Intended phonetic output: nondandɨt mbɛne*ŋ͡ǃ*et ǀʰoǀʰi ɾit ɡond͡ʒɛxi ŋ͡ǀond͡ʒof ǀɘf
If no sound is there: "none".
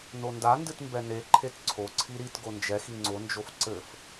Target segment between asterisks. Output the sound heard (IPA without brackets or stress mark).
ǃʰ